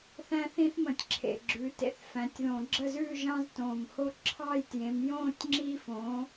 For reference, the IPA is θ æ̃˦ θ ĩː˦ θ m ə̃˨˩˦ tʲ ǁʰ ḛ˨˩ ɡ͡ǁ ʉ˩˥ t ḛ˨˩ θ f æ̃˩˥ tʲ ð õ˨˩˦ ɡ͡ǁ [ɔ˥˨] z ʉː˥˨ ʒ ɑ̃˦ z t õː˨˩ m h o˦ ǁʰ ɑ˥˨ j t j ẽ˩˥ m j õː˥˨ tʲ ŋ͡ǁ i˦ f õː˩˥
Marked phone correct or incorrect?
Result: incorrect